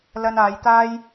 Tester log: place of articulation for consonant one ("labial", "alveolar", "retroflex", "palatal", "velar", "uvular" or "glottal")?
alveolar